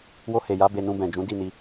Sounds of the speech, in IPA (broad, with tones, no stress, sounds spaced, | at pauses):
w o˧ h e˨ j a˨˦ b e˧ n ũ˧ b ɛ̃˨ d͡ʒ ũ˨˦ d i˦˨ n i˧